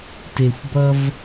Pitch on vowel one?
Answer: low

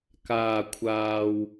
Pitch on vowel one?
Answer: low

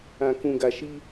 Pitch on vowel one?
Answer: low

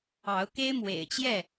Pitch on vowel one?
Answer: rising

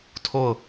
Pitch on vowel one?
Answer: falling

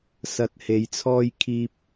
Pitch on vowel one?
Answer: low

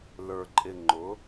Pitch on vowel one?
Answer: low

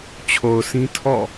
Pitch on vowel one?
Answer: low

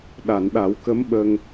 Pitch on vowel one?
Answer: low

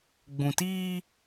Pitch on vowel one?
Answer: low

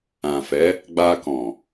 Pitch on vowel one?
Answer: low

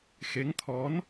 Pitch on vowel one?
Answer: rising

